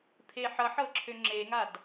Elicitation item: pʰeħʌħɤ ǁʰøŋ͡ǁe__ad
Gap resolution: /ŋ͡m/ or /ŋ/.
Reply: ŋ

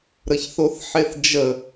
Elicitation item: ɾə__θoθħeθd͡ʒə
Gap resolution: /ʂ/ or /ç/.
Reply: ç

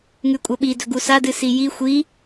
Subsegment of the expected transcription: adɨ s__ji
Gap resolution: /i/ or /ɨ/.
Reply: i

